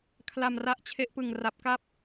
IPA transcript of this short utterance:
kʰ l a˧ m r a˦˥ ʔ t͡ɕʰ e˦˥ ʔ p ɯ˧ ŋ r a˦˥ p̚ k a˥˩ p̚

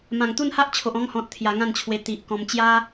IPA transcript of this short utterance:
m ã˨˩ ŋ t̪ u˥˧ n h a˦ ʔ t͡ɕʰ o˨ ʔ ɔ̃˧ ŋ h ɔ̃˨ t̚ t̪ʰ j a˧ ŋ ã˥˧ n t͡ɕʰ w e˧ t̪ i˨ ʔ k ɔ̃˧ m t͡ɕ j a˦

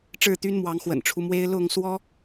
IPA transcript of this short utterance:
ʈ͡ʂ ɻ̩˥˨ t̪ y˦ n m w ɑ˨˦ ŋ x w ə̰˨˩ n ʈ͡ʂʰ u˦ m w e˦ ɪ̯ l ʊ˥˨ ŋ s w ɔ˦

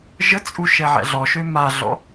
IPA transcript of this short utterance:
ʒ ə t͡sʼ u ʃ ɛ ʕ ɛ̰ ɮ ɔ ʃ ø m a ɮ ɔ̰

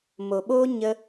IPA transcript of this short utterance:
m o˨ ɓ oː˦ ɲ ə˧

